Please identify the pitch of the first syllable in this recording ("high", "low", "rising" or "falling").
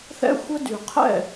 high